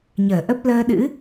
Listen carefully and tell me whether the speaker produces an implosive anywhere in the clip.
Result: yes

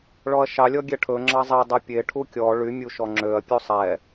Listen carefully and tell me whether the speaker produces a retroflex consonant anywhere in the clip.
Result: yes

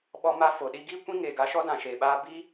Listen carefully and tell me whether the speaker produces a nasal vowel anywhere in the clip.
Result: yes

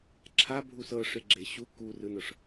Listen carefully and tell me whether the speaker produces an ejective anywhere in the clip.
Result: no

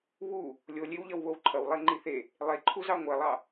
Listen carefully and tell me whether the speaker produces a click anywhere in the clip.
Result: yes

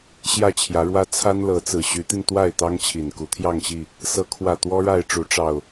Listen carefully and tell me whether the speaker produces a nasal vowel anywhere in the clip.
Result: no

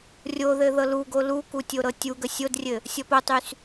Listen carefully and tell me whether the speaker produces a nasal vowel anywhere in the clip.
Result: no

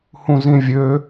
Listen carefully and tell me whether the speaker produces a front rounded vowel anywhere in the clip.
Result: yes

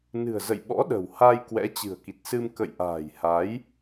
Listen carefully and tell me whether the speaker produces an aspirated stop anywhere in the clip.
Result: no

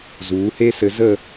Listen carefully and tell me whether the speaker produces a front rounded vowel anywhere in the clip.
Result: no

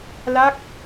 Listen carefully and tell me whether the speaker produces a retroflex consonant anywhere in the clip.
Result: no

